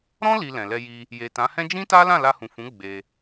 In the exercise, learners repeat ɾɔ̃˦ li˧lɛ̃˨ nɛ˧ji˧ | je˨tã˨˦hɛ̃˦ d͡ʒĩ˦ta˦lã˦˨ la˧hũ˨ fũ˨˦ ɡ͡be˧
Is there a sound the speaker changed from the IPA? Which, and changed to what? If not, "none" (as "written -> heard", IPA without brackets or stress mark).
n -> l